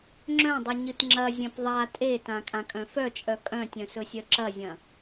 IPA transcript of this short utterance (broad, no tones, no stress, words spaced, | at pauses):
ŋ͡ǁœ̃dˤɨ ɲɨtŋ͡ǁɐ zʲɐ̃pðˤa tʼetã kʼãkʼœ̃fœt͡ʃʼœ kʼœ̃tʲœ̃sɵsʲœ ǁɐzʲɐ̃